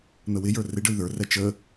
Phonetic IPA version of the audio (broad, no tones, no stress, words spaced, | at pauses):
n̪əwɪjə˞ rɪɖəy̯ ðə˞rɛ t͡ʃə